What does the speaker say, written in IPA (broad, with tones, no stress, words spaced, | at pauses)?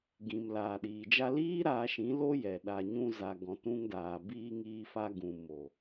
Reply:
ɡĩ˨mlaː˨ɗiː˨d͡ʒa˦ liː˦ ɾaː˧ʃĩ˨˦ lo˦jɛ˨ ɗa˨ ɲũ˧za˨ ɡɔ̃˨tũ˧ŋdaː˨ biː˧ŋiː˧fa˧ ɡũ˨mo˨